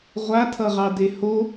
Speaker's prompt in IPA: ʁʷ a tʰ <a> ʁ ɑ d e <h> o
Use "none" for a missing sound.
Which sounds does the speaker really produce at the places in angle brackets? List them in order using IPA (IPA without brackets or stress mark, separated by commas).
ʌ, h